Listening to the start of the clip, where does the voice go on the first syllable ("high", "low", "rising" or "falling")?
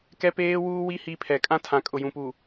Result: high